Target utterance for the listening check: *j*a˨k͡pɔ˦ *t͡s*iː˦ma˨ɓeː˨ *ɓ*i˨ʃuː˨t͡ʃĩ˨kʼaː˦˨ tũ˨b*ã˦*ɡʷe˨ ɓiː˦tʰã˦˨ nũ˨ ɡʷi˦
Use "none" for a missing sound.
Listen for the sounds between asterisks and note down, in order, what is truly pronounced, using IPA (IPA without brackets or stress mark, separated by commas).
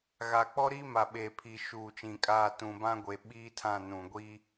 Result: ɣ, ɾ, pʰ, ã˦